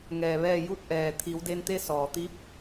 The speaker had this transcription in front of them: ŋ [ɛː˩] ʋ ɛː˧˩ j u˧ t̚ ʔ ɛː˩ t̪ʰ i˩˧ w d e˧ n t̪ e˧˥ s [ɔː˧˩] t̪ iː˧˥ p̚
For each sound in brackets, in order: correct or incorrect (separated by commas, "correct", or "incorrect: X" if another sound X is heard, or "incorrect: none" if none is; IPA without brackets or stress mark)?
correct, incorrect: ɔː˩